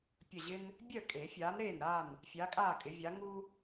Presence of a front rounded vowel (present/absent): present